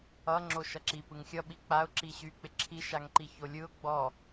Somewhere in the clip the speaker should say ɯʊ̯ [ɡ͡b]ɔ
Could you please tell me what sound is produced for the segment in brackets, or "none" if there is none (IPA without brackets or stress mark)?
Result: ɡ͡b